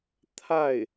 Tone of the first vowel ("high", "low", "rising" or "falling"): falling